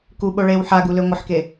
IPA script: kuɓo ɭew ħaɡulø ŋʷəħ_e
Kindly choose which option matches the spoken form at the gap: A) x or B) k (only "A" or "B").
B